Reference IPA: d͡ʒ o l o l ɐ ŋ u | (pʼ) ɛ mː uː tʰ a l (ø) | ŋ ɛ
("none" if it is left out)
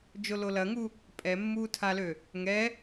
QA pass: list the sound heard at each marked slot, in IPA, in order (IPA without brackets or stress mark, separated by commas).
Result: pʼ, ø